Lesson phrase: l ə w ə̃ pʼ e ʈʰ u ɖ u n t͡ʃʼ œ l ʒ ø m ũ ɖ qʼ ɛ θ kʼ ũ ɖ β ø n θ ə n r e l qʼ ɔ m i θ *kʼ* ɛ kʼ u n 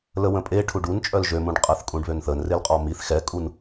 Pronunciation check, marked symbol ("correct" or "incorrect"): incorrect